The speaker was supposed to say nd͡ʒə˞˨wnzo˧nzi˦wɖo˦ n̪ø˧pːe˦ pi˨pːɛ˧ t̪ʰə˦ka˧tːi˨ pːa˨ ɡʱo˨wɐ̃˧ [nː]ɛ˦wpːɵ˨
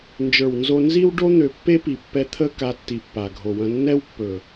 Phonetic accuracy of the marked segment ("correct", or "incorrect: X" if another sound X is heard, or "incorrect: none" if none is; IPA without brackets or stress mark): correct